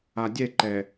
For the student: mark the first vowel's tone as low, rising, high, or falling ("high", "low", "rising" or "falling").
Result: low